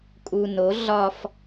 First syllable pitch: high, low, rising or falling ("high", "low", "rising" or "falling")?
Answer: low